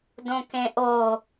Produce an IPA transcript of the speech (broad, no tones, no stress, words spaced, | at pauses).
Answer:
dõkẽʔo